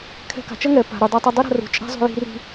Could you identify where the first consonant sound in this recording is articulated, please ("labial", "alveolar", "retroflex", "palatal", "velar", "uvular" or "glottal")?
velar